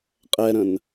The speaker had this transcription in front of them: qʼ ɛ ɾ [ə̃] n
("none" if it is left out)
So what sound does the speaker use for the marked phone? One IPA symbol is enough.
ə̃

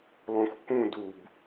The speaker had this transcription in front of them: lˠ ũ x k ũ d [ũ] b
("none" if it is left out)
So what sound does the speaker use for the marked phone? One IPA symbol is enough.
u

